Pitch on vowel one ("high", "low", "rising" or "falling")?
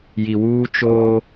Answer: low